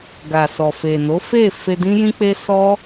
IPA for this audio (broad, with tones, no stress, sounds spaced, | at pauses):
ɡ a˨ s ɔ˨ f e˨ n o˨˦ f e˦˨ f e˧ d ĩ˦ j ĩ˦ k͡p e˦ s ɔ˦